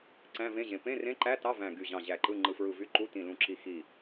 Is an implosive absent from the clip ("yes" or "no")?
yes